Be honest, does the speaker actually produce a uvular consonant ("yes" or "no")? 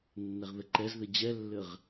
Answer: yes